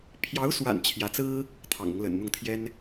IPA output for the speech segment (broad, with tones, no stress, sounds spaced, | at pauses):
pʰ j ɑ˧˥ ʊ̯ s w a̰˨˩ n t͡ɕʰ j ä˧˥ t͡s ɹ̩˥ | t̪ʰ ɑ̰˨˩ ŋ ʊ˦ ŋ l ə̰˨˩ n n̪ ʊ˥˩ ŋ t̪ʰ j ɛ˥ n